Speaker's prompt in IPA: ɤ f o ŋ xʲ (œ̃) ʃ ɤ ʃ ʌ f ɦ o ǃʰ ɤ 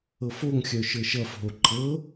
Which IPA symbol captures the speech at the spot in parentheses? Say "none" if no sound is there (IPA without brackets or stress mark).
œ